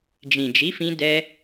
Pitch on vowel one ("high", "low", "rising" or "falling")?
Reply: low